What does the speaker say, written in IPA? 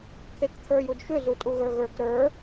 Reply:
kʰ e k t̪ʰ ə˞ j u d ʃ ʏ z u tʼ u ɣ ə˞ ɣ ə˞ k ɾ ə˞

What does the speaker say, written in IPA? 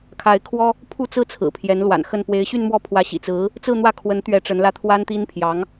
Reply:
kʰ a˧˥ ɪ̯ kʰ w ɔ˥ | pʰ u˥˧ t͡s ɹ̩˥˩ t͡sʰ ɹ̩˨˩ pʰ j ɛ˧˥ n l w a̰˨˩ n x ə˥˩ n p w e˧˥ ɪ̯ ɕ y˥˧ n m w ɔ˥˩ pʰ w ä˧˥ ɕ ḭ˨˩ t͡s ɹ̩˧˥ | t͡s ɹ̩˥˧ n̪ w ä˥˩ kʰ w ə˧˥ n t̪ ɥ ɛ˧˥ ʈ͡ʂ ə˧˥ n l ä˥˩ t̪ʰ w a˥ n t̪ i˥ n pʰ j ɑ˧˥ ŋ

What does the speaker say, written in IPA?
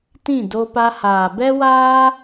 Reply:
t ĩ˦˨ d o˧ p a˧ h aː˨ b ɛ˦ w aː˦

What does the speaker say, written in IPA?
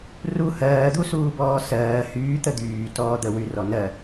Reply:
r u h ɜː d̪ u s uː b ɔː s ɜː h yː t̪ ə d̪ yː t ɔː d̪ ə w y r ɔ n ɜ

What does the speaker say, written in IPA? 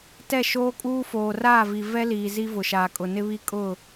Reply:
t ɛ˦˨ ʃ oː˦ kʼ uː˦ f oː˨ r aː˦˨ v i˨ v ɛ˦ l iː˨ z i˦ v ʊ˨ ʃ aː˨ kʼ ʊ˨ n ɪ˦ β i˦ kʼ ʊ˦˨

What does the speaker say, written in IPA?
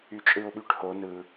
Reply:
y t͡ʃʼ ɯ ʊ̯ ɓ y ʈ h o n ɯ

